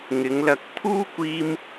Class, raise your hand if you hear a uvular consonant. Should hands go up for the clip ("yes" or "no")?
no